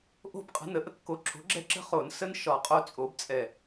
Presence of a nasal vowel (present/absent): absent